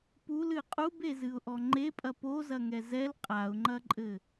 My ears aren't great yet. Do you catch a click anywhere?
yes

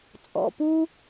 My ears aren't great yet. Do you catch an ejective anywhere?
yes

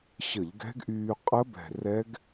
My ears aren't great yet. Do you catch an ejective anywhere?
yes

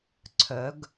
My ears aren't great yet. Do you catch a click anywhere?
yes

